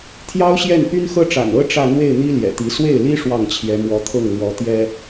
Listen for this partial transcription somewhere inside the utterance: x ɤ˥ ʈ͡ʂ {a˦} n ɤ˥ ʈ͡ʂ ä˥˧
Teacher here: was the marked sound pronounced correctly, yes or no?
no